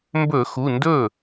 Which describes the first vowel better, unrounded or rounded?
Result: rounded